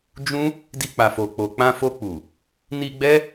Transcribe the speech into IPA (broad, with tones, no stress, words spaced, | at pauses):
d͡ʒũ˦ | di˧k͡pa˨ fo˨k͡po˨k͡pã˧ fo˧k͡pu˨ | ni˧ɡ͡bɛ˦